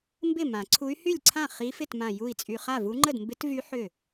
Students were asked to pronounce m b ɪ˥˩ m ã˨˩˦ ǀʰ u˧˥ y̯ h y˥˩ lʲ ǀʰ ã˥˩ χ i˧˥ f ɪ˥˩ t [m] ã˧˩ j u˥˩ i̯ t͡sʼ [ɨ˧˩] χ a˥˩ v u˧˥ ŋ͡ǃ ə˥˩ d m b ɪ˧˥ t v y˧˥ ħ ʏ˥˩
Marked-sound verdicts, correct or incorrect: correct, incorrect

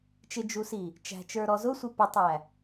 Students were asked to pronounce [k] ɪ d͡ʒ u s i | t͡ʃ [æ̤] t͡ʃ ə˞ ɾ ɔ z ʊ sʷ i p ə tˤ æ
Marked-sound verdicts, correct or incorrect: incorrect, correct

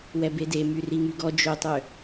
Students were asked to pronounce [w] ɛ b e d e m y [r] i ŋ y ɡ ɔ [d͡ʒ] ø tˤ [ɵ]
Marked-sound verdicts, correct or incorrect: correct, correct, correct, incorrect

